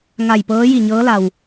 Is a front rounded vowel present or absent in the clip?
absent